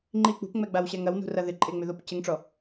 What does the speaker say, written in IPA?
ŋ͡ǃ i k͡p ṳ p ŋ͡m ɛ ɡ͡b a w ɕ ɛ ŋ ɐ w n ṳ r ɐ ð ɪ ǃʼ e ŋ͡m ʏ ð o p c ɪ ŋ ʈ͡ʂ ɔ

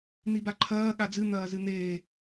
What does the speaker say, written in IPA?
n̪ i b a ǃʰ ɐː ɠ a d͡z ɨ n̪ ɐː z ɨ n̪ eː

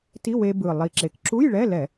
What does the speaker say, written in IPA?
t i˧˥˧ w e˧ b ɯ˨˩ lˠ i˨˩ ǁ e˨˩ k ǁ u˧˥˧ j ɭ ɛ˧˥˧ l ɛ˧˩˧

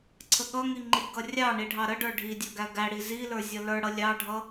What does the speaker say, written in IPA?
ǀʰ ə ɠ ʌ ŋ i ŋ͡ǃ i ɡ ʌ rʲ ɑ ɳ i ɖʱ ɑ ɾ ə ɖ ə˞ ɖʱ i dʲ ʌ ɡ æ ɡ æ ɽ i z i l ə˞ zʲ ʌ l ə˞ ɽ ʌ lʲ ɑ ɖʱ ʌ

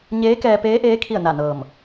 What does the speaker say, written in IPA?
ɲ eː˧˥ k ɛː˧ p eː˧˥ ʔ eː˧˥ kʰ i˥˨ ə̯ n a˧˩ n ɤː˧˩ m

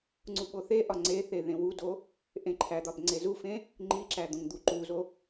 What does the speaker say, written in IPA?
ŋ͡ǀ u ɓ o θ e ʔ ɒ ŋ͡ǀ e θ e ð ẽ w u d o | ʔ ẽ ǃʰ æ d̪ ɒ b ŋ͡ǀ e z u f ẽ | ŋ͡ǃ i ǁ æ d̪ õ ŋ d̪ u ǃ u z o

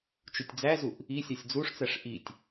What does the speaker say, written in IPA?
t͡ʃ u tʲ d͡z æ z u ʔ | i sʲ ɒ sʲ d͡z u ʂ t͡s æ ʂ ʔ i tʲ

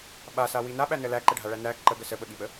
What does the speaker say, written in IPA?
ɓ a s a w i n a ɓ æ n ə l æ ǃ ə ɖʱ a ɭ æ n æ ǃ ə ɡ ə s ə ɓ ə ɠ i ɓ ə

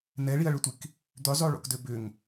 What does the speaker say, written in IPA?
n ɛ ɭ i ɐ̯ ɭ ʏ tʷ i k | d̪ ʏ zˤ o ɭ o̰ k d ø b ʏ ŋ

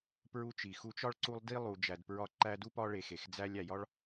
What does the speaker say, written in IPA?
p ɹ u˦ t͡ʃ i˨ x u˦ t͡ʃ ɒ˥ ɭ ǀ u˦ lˠ d i˥ lˠ u˨ d͡ʒ æ˨ d p ɹ ɒ˦ ǃ æ˦ d u˥ p ɒ˦ ɭ e˨ x e˩ x d͡z æ˦ lʲ æ˨ j ɒ˥ ɭ

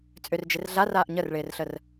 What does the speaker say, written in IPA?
t͡sʼ ʏ r d͡ʒ ɪ r ɮ a r aː ʔ ɲ ə r ɭ ɪː r ɬ ə r

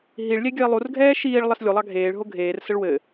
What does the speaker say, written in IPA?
ɦ i ɭ lʲ ɛ ɡʲ œ i̯ lˠ u r ɡʱ ɛː ʃ iː ɭ lˠ ɘ s lʲ u lˠ ɑ ɡʱ eː ɭ ɦ o ɡʱ eː r s ə ɭ w ɘ

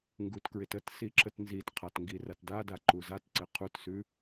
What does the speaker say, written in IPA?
ŋ ɡ u t k ɹ ɪ t ə t s i ǁ ə t n z i t qʰ a t ŋ ɡ i r a t d a d a ǃ u z a t ǀ ɪ qʰ u t s ʉ

